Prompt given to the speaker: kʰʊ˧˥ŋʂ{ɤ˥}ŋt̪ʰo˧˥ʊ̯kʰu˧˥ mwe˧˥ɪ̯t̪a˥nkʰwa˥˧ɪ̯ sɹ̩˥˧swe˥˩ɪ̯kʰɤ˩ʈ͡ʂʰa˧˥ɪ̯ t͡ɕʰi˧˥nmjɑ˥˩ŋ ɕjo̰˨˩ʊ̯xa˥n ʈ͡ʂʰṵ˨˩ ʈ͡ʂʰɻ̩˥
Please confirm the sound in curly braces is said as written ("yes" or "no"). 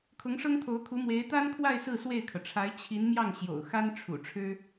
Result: yes